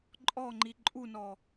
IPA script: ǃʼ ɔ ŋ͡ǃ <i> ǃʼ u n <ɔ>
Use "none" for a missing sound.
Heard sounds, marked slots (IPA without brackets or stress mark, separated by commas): i, ɔ